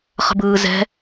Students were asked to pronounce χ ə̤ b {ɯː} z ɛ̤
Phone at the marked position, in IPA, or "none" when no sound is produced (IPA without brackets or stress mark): ɯː